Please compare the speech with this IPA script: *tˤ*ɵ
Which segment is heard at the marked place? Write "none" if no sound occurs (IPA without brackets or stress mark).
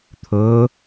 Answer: t̪ʰ